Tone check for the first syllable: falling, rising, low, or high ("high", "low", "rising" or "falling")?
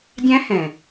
high